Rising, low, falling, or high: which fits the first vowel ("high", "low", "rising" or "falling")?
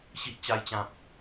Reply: high